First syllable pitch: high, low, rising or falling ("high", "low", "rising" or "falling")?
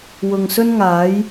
low